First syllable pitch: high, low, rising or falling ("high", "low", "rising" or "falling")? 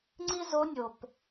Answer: high